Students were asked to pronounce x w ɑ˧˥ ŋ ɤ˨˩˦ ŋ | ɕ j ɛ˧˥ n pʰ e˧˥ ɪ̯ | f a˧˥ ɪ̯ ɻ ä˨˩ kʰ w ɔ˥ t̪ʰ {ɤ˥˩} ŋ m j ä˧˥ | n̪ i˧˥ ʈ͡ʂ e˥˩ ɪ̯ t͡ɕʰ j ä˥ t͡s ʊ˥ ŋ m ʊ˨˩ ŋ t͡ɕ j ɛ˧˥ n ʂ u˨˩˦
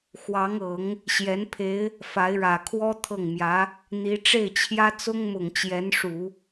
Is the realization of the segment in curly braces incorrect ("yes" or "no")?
no